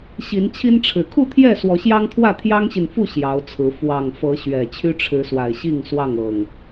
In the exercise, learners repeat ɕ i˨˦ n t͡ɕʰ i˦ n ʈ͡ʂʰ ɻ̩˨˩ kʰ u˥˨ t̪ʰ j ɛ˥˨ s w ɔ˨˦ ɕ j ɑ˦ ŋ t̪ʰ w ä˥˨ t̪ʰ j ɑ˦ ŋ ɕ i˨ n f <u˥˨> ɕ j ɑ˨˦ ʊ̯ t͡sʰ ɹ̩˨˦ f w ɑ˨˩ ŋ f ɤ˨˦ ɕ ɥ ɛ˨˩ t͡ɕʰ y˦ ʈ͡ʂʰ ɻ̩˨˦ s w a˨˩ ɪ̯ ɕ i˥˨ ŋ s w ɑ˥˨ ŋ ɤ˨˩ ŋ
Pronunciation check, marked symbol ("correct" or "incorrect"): correct